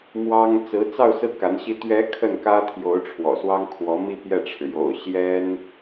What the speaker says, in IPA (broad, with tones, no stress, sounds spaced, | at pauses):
m w ɑ˥ ŋ t͡s ɹ̩˧˥ t͡s ɑ˥˧ ʊ̯ s ɹ̩˥˩ k a˧˥ n ɕ i˥ t̪ ɥ ɛ˧˥ kʰ ə˥˩ n k ä˥ t̪ʰ j o˧˥ ʊ̯ ʈ͡ʂʰ w ɔ̰˨˩ s w ɑ˥ ŋ kʰ w ɔ˧˥ m i˥˧ p j ɛ˥˩ ʈ͡ʂʰ ɻ̩˩ j o̰˨˩ ʊ̯ ɕ j ɛ˥ n